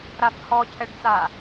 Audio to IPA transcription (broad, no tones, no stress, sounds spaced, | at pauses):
ɾ a f h ɔ cʰ ɛ ɖ t͡s a